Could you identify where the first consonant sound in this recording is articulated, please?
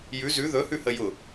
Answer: palatal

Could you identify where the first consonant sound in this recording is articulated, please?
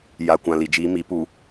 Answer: palatal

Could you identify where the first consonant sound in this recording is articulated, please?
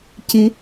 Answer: palatal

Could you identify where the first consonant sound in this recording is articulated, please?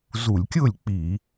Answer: alveolar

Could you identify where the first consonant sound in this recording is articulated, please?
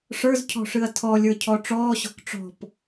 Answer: retroflex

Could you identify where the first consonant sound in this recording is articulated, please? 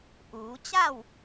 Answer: glottal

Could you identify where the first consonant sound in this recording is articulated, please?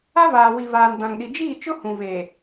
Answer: labial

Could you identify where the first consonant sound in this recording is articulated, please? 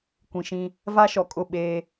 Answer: velar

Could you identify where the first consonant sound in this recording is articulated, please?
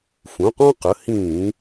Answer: labial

